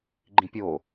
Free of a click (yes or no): no